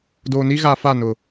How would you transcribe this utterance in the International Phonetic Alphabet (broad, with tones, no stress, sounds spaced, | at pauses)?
d oː˨ n i˦ ɣ a˨ f a˦˨ n ʊ˨